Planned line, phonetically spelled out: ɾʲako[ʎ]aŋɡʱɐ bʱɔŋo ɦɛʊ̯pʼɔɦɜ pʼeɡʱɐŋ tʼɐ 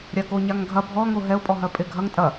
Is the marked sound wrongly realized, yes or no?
yes